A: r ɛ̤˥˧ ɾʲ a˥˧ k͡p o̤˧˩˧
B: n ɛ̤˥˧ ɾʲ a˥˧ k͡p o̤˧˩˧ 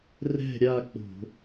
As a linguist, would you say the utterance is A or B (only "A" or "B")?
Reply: A